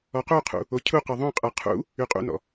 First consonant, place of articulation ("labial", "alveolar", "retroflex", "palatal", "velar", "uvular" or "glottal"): uvular